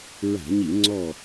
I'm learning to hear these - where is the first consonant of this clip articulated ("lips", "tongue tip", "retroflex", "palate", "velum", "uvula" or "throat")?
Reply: tongue tip